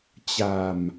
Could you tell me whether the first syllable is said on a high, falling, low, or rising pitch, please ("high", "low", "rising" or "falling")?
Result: low